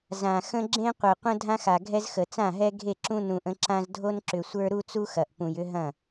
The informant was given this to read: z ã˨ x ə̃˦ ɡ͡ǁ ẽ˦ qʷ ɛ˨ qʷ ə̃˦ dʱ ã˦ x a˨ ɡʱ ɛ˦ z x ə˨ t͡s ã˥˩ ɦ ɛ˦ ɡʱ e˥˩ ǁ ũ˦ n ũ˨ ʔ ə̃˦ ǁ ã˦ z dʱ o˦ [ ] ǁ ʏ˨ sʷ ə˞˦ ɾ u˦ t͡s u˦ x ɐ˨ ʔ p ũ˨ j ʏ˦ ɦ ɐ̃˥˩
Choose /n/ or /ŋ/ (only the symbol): n